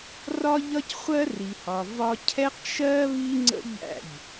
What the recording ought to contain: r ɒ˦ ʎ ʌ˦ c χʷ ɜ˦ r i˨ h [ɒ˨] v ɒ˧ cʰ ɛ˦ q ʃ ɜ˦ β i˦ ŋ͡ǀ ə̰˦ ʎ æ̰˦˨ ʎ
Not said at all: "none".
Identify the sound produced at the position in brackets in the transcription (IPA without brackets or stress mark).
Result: ɒ˨